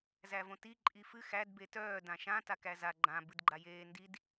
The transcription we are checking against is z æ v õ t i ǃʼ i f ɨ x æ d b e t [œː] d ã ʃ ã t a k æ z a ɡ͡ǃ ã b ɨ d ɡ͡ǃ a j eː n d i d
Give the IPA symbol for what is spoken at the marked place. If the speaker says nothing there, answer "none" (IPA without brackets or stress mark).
œː